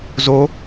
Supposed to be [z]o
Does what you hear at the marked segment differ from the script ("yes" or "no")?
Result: no